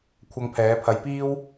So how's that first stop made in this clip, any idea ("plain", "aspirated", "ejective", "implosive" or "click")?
aspirated